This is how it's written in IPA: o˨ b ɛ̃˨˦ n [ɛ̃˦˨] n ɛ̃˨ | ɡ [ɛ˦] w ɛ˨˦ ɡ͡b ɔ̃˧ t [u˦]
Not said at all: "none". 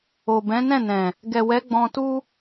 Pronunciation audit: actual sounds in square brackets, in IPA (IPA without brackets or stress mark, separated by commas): ɛ̃˦˨, ɛ˨, u˦